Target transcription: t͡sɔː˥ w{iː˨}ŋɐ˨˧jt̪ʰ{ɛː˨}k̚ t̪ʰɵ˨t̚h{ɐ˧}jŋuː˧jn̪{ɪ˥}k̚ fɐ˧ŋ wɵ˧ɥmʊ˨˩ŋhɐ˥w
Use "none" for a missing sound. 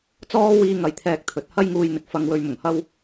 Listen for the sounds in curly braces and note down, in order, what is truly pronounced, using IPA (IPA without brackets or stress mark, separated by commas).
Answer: iː˧, ɛː˨, ɐ˥, ɪ˨